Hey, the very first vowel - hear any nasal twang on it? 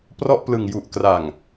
no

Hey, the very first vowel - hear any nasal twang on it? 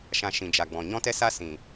yes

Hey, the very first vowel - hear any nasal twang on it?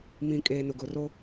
yes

